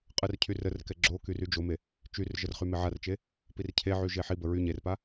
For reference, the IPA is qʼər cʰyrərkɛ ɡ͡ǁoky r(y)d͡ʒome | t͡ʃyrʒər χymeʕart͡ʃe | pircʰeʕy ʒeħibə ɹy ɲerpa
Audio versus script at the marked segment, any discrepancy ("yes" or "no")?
no